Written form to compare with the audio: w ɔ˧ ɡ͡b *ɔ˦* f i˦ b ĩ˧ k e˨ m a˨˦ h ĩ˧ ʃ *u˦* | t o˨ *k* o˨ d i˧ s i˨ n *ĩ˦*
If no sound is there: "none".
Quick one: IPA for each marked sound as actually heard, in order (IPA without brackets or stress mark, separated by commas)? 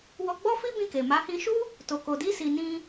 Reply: ɔ˦, u˦, k, ĩ˧